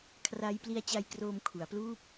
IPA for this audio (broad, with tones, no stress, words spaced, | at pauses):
kʰra˦˥jpli˦˥a̯t͡ɕa˧j kroː˧mkʰu˩˦a̯pluː˥˩p̚